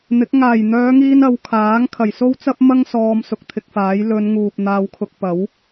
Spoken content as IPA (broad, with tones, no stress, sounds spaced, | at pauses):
n̪ ɪ˨˥ k̚ ŋ aː˨˩ j n̪ œː˨˧ ŋ iː˧ n ɐ˨˧ w kʰ aː˨˥ ŋ kʰ ɐ˨˩ j s o˥ w t͡s ɐ˥ p̚ m ɐ˥ ŋ s ɔː˧ m s ʊ˧ k̚ t̪ʰ ɪ˧ k̚ f aː˨˥ j l ɵ˨˧ n ŋ uː˨ p̚ n̪ aː˧ w kʰ ʊ˧ k̚ p ɐ˨˥ w